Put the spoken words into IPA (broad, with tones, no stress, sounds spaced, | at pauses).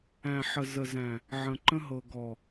æ̃˨ ħ ə˨ z ə˨ z æ̃˨ | ʕ ə̃˨ ǃ ə̃˦ ɦ ɤ˨ ɡ ɔ˨